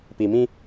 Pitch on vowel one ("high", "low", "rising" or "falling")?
low